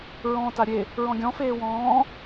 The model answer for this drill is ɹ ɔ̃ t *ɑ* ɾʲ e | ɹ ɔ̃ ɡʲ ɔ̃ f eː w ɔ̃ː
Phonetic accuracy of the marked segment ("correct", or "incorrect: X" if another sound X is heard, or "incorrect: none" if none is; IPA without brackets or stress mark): incorrect: a